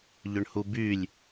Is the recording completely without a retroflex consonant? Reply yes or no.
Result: no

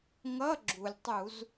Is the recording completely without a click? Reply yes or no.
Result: no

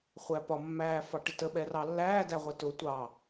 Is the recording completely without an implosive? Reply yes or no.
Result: no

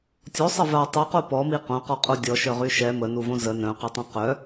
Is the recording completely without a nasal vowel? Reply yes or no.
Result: no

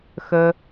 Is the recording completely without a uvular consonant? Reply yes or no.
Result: yes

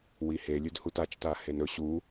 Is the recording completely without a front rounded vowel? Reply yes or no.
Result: yes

